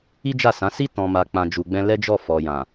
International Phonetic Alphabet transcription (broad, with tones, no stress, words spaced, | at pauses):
i˦d͡ʒa˦˨sã˨˦ si˦ tɔ̃˧ma˧ k͡pã˨d͡ʒu˨ɡ͡bɛ̃˧ lɛ˦d͡ʒɔ˦˨ fɔ˨jã˨